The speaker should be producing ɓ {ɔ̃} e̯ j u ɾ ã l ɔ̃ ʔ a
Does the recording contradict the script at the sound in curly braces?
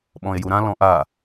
no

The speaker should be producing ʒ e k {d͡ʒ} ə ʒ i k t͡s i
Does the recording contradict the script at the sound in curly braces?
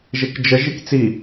no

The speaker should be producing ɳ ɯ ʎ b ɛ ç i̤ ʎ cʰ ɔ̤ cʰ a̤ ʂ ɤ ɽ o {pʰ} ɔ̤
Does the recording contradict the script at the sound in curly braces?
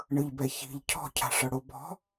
yes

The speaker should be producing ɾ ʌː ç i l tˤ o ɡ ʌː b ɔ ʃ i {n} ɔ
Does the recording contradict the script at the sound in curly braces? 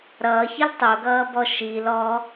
yes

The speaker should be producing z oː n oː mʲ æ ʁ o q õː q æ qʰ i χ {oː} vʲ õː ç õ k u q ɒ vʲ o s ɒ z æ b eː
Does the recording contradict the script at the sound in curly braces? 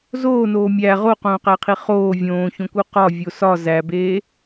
no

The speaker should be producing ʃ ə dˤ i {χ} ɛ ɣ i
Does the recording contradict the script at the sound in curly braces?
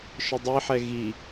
yes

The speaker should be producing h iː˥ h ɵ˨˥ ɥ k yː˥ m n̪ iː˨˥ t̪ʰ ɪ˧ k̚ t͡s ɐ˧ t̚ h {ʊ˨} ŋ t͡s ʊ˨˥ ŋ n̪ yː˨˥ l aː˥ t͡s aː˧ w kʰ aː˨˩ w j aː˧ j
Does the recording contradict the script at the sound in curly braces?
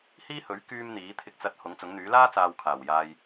yes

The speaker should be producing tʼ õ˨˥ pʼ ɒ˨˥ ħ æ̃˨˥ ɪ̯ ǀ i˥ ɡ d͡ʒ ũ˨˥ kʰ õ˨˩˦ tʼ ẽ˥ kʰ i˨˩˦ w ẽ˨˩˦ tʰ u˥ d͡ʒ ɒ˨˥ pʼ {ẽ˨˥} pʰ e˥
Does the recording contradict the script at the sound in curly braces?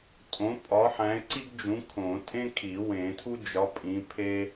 yes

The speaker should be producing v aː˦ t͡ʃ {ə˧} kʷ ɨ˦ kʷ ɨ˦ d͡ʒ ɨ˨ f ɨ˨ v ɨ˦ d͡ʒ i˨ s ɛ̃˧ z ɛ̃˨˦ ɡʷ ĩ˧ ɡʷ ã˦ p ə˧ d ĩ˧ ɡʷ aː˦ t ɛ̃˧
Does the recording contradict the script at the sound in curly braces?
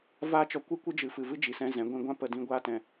yes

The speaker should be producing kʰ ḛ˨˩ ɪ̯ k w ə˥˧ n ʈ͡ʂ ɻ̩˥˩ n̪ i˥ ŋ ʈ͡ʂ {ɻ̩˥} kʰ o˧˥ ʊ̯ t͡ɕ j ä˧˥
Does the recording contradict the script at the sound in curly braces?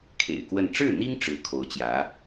no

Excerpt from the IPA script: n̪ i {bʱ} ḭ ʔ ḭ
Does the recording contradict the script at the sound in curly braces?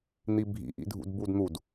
no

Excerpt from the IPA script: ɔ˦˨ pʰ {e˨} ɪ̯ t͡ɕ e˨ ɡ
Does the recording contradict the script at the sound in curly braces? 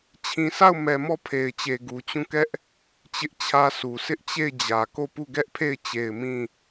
no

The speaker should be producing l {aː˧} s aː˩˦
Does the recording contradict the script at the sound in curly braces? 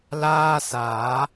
yes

